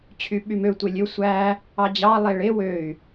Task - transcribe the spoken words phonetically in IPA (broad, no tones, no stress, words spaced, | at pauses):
t͡ɕʰyɓymø tʷelʲø sʷæ | ɑd͡ʑɑ lˠeɭe wøy̯